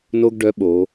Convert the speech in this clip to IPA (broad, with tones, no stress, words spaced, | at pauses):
no˥ɡɖœ˧˥ ɓo˩˧